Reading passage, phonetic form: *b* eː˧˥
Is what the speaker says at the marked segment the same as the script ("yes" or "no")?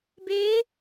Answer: yes